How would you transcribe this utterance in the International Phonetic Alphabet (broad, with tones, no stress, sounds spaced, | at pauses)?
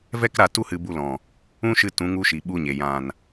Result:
v ɛ˦ k ɾ a˧ t u˦ h ɨ˧ b u˧ l ɔ̃˨ | ũ˦ ʃ ɨ˧ t ũ˨˦ ŋ u˧ ʃ i˨ ɓ u˧ ɲ e˨ j ã˨ n